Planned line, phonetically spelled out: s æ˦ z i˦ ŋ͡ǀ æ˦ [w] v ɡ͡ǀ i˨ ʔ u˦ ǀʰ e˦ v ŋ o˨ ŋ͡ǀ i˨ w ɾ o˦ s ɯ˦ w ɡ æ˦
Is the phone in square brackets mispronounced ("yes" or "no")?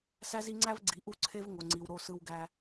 yes